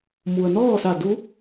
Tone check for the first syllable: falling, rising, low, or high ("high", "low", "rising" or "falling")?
low